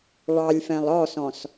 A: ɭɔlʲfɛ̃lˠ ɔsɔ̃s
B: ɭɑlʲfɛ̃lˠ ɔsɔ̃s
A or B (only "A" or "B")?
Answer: B